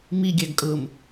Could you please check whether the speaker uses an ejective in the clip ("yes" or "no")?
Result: yes